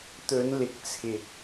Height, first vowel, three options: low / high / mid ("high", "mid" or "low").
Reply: mid